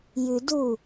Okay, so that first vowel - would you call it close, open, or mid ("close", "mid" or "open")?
close